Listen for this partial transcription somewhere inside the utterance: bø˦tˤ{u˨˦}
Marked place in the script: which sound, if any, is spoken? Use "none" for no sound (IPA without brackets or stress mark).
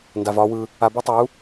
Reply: u˨˦